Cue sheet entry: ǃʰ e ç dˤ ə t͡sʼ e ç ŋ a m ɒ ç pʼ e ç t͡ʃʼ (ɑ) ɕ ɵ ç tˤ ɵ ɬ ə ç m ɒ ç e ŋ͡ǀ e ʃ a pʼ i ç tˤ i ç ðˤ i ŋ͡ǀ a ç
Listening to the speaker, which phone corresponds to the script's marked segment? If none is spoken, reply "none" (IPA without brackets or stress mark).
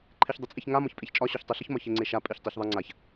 ɒ